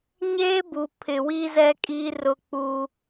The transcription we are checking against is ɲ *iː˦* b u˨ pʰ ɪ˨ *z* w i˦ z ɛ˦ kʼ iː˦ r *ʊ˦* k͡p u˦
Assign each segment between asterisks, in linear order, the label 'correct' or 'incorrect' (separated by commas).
incorrect, incorrect, correct